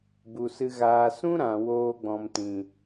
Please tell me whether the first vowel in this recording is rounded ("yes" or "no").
yes